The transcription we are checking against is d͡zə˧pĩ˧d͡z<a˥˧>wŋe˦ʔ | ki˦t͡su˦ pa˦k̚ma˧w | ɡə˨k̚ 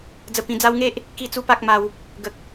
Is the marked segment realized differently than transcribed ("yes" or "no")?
yes